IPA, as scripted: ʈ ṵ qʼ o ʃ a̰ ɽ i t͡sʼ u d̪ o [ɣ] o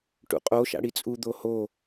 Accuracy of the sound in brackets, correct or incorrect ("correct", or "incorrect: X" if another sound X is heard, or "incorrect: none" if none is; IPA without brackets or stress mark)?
incorrect: h